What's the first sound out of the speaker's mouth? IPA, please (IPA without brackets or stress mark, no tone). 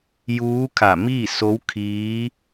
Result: j